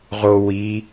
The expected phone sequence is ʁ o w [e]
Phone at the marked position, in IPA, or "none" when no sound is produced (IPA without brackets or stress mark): i